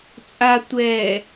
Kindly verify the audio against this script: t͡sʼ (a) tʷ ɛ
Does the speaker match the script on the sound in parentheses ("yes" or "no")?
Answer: yes